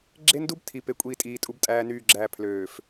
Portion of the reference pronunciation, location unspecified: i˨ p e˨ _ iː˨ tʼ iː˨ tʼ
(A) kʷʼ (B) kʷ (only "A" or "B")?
A